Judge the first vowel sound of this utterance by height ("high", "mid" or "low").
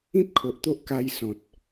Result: high